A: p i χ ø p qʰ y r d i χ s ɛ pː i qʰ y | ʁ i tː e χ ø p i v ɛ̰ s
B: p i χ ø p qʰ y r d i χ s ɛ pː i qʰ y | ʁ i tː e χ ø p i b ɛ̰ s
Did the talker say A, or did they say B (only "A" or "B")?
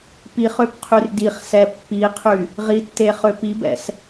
B